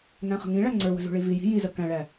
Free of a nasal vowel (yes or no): no